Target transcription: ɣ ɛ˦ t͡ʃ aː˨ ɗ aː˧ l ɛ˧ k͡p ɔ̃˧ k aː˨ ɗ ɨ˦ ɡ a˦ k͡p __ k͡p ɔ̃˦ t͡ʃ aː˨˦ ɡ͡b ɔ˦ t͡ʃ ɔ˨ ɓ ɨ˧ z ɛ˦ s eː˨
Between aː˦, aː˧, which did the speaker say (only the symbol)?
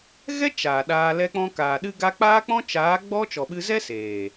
aː˦